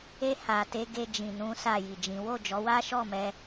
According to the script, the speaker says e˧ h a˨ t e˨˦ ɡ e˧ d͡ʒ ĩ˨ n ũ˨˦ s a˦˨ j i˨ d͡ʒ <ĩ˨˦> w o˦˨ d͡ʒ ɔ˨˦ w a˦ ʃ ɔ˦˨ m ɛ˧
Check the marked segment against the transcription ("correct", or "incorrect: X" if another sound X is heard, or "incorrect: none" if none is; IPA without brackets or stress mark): correct